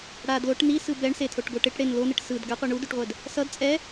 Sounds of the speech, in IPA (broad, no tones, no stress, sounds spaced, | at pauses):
ɽ a d l o ʈ n i s ɯ b ɛ ɳ s e tʰ o ʈ ɡ o ʈ e ʈ ɽ e n l o n ɯ ʈ s ɯ d ɡ a qʷ i ɳ u d u ʈ ʁʷ ɛ d | s ʌ d t͡sʼ ɛ